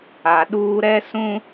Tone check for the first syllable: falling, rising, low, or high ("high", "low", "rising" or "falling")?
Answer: low